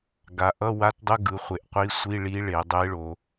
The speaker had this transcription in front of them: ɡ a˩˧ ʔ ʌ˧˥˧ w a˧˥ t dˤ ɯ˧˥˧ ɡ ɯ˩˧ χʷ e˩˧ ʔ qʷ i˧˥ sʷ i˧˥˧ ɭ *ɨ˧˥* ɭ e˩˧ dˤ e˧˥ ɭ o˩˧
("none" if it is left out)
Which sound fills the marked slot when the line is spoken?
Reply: i˧˥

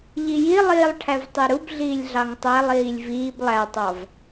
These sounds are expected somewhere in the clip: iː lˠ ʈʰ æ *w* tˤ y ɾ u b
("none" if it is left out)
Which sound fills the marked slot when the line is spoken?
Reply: v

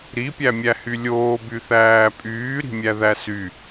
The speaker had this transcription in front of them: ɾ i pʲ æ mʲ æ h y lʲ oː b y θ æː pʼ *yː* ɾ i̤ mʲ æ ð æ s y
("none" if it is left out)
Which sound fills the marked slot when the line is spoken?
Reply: yː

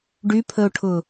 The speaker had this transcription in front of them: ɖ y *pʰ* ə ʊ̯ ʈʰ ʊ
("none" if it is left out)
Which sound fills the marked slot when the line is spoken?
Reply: pʰ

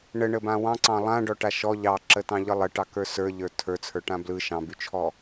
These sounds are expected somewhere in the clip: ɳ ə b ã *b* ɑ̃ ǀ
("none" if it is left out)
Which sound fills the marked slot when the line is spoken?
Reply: w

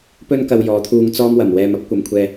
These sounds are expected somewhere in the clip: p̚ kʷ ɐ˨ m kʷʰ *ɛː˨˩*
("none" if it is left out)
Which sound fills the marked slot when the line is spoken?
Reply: ɛː˧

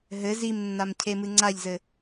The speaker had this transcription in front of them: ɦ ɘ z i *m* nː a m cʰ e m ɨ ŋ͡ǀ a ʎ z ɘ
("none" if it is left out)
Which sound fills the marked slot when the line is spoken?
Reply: m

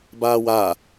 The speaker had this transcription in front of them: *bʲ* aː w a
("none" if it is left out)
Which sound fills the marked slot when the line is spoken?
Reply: b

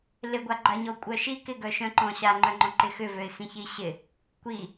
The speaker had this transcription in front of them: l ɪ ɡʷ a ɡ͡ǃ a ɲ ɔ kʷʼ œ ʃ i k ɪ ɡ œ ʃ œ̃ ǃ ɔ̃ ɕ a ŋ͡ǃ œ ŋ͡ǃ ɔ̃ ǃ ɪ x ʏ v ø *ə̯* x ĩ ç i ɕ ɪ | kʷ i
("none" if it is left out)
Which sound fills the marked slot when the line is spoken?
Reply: ɪ̯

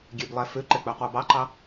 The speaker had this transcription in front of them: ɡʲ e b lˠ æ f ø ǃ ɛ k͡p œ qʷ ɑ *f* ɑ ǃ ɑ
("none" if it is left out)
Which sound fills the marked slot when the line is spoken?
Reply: b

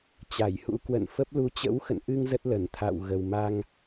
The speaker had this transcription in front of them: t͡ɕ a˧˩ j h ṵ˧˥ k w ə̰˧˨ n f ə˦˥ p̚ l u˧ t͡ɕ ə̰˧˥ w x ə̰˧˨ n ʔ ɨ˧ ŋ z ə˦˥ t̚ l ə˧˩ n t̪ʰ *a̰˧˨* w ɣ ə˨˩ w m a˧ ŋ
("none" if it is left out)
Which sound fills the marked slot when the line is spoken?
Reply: a̰ː˧˨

